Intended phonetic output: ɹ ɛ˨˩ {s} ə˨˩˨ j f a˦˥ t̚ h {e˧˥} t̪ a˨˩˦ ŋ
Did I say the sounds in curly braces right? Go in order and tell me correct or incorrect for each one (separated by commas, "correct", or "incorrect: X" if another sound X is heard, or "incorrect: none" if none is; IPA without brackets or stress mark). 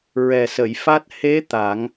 correct, correct